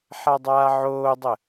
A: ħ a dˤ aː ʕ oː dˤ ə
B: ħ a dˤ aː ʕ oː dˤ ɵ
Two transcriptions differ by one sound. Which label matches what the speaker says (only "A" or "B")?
A